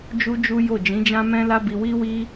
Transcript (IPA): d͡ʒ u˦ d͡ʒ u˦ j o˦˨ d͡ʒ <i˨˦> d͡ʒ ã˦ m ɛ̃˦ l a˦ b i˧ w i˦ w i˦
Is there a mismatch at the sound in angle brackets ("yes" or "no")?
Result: yes